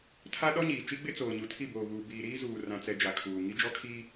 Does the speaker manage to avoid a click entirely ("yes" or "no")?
yes